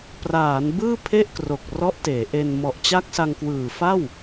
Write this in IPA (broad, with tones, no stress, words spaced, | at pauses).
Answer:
praː˩˦n bɯː˥˩pʰe˥˩ʔkro˨˩k̚rɔ˦˥ʔ teː˩˦ʔe˧n mɔ˨˩ʔt͡ɕa˦˥k̚sa˧ŋkwɯː˨˩ fa˥˩w